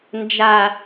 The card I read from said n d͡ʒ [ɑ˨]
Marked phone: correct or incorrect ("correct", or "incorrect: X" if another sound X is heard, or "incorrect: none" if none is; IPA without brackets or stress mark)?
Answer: incorrect: a˨